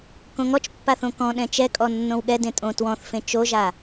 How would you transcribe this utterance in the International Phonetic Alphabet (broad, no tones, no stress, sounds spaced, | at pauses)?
k õ ŋ ɔ t͡ʃ pː a θ õ k ɔ̃ ɗ ɛ̃ t͡ʃ ɛ kʼ ɔ nː õ w ɠ ɛ d ẽ tʼ õ t w ɔ̃ θ f ẽ t͡ʃ o ʒ a